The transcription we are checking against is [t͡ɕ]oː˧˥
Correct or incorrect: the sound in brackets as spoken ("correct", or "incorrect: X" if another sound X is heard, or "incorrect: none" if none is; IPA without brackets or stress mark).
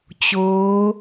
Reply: correct